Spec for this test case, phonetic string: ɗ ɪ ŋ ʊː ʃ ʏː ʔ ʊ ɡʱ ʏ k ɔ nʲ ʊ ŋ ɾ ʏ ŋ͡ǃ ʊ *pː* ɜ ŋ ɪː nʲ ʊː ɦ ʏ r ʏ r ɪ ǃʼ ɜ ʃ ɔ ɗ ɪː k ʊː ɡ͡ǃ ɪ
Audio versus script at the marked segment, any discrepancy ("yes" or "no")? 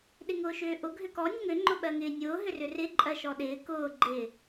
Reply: yes